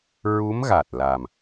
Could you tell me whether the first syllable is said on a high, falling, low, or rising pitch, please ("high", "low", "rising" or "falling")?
rising